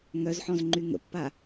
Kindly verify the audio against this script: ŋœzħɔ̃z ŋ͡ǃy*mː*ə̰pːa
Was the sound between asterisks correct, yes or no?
no